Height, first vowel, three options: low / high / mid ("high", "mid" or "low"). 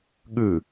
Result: high